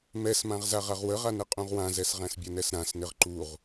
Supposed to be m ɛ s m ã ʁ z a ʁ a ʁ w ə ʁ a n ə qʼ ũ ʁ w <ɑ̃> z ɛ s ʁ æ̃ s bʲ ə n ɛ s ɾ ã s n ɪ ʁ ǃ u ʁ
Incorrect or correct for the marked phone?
incorrect: ã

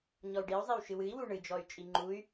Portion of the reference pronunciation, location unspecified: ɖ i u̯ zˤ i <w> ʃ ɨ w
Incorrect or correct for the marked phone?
correct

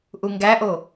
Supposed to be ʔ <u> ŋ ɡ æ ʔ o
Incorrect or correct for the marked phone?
correct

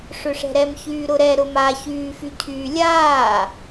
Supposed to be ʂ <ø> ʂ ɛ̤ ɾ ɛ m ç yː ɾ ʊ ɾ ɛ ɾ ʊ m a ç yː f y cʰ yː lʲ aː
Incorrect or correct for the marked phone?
correct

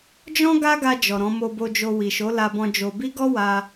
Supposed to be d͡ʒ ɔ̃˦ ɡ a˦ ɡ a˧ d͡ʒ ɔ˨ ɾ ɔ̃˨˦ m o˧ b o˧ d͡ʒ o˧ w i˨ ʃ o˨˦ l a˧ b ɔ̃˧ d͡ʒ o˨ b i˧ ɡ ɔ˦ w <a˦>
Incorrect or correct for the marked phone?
correct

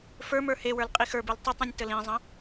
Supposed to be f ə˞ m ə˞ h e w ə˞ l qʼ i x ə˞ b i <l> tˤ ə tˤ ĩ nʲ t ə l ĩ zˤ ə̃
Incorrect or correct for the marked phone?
correct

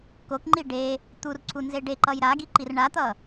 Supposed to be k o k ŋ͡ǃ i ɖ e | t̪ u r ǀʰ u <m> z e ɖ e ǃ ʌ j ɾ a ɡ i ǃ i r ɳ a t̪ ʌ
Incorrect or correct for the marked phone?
incorrect: n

